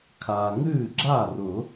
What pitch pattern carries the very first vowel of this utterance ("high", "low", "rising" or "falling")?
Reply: low